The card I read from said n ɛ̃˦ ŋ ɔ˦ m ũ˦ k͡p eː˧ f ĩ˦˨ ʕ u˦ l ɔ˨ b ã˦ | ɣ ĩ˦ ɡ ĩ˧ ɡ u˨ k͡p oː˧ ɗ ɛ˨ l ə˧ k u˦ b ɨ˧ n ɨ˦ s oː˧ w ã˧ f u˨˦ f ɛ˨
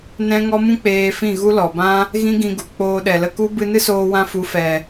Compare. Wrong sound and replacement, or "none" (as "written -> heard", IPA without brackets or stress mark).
ʕ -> ɣ